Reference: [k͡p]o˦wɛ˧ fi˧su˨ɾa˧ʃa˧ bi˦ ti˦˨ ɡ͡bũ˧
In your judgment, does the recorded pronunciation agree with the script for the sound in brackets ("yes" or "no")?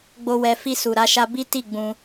no